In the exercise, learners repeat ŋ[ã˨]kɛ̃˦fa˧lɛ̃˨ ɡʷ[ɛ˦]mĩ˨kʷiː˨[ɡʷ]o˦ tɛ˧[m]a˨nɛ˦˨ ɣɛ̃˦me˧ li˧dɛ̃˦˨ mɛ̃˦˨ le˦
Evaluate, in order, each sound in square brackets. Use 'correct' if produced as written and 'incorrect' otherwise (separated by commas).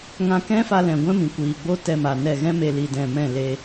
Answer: incorrect, incorrect, incorrect, correct